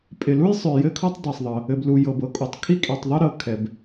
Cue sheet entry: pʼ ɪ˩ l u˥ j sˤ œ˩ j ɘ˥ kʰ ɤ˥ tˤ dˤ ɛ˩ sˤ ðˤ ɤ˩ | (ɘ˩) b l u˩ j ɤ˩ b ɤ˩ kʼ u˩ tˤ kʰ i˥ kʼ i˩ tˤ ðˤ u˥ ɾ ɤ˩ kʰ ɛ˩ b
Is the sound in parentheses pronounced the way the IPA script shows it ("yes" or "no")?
yes